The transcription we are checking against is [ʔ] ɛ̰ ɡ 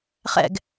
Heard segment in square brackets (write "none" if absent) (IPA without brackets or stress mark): χ